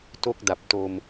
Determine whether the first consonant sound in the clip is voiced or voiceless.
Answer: voiceless